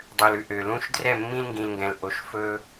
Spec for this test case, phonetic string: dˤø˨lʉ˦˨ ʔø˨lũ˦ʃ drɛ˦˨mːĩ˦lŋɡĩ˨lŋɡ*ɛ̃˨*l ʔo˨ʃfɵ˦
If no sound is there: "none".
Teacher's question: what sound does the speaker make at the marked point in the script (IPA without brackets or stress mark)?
ɛ̃˨